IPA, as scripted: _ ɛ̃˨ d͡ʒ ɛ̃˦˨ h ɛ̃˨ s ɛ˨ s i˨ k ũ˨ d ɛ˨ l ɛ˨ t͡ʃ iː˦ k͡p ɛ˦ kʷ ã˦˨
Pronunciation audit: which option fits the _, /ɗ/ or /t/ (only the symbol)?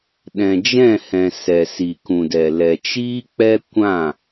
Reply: ɗ